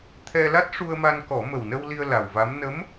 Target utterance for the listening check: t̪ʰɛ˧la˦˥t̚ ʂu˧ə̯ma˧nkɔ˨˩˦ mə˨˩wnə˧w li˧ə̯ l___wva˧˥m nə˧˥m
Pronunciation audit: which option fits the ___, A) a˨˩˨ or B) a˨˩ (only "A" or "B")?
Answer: B